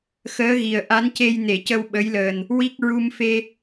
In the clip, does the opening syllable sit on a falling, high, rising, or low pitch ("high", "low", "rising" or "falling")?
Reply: rising